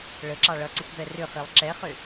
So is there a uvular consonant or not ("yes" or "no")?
yes